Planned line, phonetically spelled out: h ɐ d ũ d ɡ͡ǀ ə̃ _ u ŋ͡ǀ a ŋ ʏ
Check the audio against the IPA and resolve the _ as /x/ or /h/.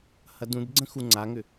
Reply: x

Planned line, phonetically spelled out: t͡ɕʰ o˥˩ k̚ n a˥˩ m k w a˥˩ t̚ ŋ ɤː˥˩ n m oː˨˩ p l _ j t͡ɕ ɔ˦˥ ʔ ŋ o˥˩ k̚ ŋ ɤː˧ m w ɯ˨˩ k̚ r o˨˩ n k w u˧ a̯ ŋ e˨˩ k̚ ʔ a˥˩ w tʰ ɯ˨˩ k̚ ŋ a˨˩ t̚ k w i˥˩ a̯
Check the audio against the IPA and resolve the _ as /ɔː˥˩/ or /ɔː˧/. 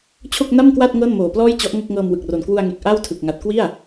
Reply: ɔː˥˩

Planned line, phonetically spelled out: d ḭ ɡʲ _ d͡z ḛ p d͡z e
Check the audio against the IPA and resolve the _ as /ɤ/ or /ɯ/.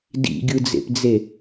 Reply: ɯ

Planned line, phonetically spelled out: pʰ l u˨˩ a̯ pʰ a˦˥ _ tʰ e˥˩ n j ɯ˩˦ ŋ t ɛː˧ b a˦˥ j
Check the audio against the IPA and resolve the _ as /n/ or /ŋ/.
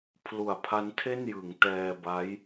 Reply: n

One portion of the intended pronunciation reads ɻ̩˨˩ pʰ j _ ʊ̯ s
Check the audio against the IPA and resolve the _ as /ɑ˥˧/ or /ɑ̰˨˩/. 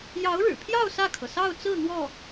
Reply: ɑ˥˧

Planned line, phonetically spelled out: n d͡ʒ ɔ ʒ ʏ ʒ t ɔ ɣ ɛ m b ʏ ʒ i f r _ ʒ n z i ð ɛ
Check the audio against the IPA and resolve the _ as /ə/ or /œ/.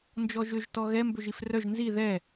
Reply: œ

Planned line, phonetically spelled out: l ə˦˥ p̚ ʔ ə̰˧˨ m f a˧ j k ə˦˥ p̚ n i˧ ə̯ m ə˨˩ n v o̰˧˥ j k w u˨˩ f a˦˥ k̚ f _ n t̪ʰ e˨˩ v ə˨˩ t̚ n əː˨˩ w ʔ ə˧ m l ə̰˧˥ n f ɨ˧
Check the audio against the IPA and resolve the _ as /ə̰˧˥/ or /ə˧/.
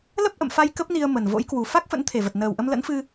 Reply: ə̰˧˥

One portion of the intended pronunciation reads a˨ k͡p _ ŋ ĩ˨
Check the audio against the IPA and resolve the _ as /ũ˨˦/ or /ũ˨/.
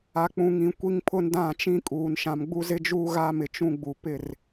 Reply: ũ˨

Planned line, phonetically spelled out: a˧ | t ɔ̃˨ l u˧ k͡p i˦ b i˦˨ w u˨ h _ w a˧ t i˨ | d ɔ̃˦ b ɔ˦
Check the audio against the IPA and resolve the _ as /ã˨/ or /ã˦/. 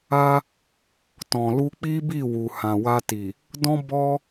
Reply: ã˨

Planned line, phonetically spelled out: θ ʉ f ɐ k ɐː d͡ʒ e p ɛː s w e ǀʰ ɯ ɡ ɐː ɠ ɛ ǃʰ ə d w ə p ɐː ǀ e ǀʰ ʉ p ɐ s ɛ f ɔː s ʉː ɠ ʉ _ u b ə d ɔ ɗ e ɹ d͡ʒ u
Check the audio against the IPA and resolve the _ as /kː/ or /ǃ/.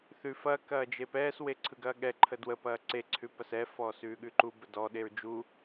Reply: ǃ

